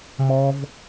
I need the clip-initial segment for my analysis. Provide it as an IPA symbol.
m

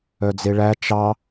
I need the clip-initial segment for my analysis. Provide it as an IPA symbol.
œ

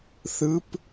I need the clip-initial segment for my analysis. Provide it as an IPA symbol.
θ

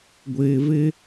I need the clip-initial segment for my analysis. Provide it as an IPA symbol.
ɡʷ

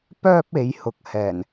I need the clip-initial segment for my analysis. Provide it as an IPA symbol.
p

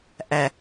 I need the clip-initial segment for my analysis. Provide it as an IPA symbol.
ʔ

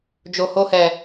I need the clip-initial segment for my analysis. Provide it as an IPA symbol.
d͡ʒ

